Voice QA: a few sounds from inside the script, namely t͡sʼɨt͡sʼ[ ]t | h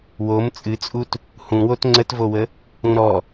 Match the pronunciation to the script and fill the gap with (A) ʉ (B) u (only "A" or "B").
B